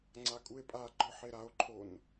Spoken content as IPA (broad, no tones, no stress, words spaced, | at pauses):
ŋ͡ǀakʼue̯pʼaɡ͡ǃɔ ħeɾao̯ǃʰon